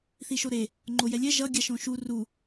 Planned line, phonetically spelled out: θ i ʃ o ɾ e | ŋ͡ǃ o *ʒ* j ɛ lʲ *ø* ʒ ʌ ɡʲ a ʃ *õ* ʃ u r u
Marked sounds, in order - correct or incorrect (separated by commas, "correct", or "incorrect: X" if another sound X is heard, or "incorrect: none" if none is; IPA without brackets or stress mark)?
incorrect: none, incorrect: ɛ, correct